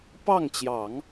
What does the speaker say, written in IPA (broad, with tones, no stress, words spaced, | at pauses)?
pɑ˥˩ŋt͡ɕjɑ˨˩˦ŋ